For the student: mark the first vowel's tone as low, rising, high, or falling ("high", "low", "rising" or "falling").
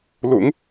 low